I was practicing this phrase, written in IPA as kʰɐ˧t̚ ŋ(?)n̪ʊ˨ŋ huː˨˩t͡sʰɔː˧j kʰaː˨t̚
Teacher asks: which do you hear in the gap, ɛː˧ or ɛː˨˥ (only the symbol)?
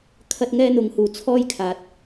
ɛː˧